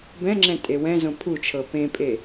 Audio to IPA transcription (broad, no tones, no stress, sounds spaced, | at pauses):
b ɛ̃ ŋ͡ǁ ɛ̃ tʼ e w ɛ̃ z õ pʰ u t͡ʃʰ ɤ p ẽ pʼ e